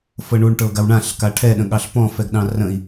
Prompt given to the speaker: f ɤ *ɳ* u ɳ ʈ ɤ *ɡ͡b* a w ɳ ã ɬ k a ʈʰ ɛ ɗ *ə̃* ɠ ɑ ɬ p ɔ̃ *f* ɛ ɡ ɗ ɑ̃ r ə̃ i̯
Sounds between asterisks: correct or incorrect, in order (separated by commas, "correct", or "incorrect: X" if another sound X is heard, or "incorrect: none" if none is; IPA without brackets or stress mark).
correct, incorrect: ɡ, correct, correct